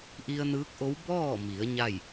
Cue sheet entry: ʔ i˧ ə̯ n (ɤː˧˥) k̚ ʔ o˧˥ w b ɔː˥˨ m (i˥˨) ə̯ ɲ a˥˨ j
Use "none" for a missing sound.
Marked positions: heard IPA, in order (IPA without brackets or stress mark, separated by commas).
ɯː˧˥, i˩˧